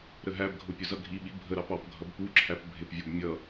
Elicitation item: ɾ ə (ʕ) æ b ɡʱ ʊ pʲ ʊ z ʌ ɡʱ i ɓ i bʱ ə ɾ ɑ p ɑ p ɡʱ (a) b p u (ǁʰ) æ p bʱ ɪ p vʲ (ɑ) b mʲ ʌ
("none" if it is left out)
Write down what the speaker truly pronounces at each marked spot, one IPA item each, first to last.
ɦ, ʌ, ǁʰ, ɔ

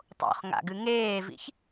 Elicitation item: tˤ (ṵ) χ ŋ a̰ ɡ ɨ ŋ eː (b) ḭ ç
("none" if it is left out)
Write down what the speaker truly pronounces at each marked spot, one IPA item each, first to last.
o̰, v

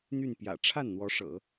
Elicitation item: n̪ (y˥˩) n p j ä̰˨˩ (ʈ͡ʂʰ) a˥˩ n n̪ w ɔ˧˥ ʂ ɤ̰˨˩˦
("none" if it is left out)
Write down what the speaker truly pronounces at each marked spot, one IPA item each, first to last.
y˥˩, ʈ͡ʂʰ

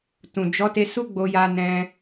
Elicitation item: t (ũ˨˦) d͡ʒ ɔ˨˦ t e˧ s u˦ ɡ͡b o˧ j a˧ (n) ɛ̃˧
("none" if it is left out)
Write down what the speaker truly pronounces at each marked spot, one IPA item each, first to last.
ũ˨, n

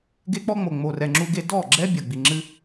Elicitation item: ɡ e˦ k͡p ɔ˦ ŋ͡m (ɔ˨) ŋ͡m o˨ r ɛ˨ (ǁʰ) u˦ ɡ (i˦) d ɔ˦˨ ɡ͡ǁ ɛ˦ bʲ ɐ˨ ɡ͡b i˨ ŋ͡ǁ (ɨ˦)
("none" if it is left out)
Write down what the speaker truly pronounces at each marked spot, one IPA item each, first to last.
o˨, ŋ͡ǁ, e˦, ɨ˦

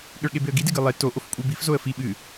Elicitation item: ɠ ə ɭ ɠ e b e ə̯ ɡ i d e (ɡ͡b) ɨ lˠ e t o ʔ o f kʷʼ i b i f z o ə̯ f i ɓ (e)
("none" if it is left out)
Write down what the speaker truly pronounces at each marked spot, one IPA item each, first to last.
ɡ, ɨ

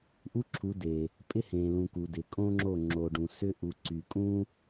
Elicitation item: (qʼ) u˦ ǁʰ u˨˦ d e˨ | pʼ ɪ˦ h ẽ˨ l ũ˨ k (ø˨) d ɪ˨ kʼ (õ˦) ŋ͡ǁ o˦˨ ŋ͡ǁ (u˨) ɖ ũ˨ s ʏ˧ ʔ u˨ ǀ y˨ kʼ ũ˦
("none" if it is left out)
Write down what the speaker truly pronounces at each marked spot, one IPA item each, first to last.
ʔ, u˨, õ˦, o˨

